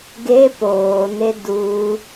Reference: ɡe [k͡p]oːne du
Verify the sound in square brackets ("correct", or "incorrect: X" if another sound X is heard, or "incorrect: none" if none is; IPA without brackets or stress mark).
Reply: incorrect: p